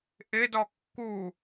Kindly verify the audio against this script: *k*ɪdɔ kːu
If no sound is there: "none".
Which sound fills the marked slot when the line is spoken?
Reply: ʔ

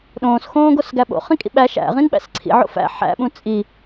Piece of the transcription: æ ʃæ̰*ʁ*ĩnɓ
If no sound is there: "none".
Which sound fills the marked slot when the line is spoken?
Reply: ʁ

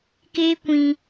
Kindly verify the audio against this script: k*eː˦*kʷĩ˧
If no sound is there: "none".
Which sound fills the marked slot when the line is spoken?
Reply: eː˦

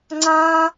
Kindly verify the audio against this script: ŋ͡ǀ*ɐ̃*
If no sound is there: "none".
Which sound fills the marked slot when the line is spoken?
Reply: ã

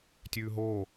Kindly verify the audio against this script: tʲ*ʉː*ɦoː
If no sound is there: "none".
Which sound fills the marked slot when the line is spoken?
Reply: ʉː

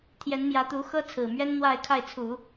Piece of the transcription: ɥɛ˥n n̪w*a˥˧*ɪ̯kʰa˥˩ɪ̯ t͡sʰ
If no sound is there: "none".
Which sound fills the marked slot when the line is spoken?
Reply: a˥˧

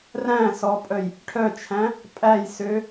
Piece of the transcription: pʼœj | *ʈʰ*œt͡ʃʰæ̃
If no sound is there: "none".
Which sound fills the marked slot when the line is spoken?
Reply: ʈʰ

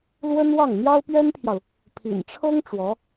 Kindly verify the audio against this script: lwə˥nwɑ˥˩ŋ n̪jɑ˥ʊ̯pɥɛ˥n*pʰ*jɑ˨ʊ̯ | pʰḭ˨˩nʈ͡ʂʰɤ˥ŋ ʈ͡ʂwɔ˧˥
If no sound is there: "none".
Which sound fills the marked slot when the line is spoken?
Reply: pʰ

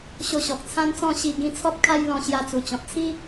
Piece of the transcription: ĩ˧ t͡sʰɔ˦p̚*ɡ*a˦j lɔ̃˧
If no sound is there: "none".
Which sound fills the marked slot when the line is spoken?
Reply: kʰ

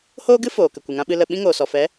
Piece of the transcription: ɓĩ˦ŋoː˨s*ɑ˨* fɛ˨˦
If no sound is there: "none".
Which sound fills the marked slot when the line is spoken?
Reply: ɔ˨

